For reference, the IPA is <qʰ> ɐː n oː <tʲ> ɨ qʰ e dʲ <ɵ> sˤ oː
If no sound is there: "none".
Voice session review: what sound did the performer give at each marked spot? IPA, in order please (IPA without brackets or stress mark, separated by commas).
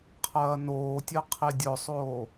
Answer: qʰ, tʲ, ɵ